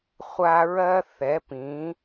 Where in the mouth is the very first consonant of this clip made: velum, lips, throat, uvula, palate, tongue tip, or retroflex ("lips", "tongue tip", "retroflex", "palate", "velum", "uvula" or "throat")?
uvula